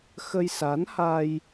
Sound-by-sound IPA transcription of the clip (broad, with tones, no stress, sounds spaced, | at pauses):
x ə˧ j s a˨˦ n h a˧ j